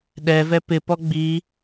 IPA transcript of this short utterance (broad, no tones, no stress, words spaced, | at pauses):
ɗɛvɛ pɪpɔ ɡ͡bi